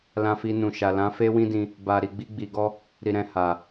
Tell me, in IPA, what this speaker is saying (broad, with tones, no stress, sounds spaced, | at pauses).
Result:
l ã˧ f i˧ n ũ˨ ʃ a˨ l ã˨˦ f e˦ w ĩ˦ d ĩ˧ | b a˧ ɾ i˧ ɡ͡b i˧ ɡ͡b i˨ ɡ ɔ˧ | ɾ i˧ ɾ ɛ̃˧ h a˨